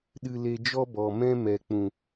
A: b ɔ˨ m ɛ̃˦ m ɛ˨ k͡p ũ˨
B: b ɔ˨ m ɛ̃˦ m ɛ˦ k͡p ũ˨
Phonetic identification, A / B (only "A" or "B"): A